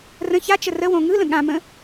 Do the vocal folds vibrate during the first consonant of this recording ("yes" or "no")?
yes